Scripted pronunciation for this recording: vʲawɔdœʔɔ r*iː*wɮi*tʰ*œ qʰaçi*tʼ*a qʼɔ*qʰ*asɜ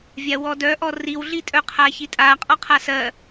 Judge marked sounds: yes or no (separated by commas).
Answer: no, no, yes, yes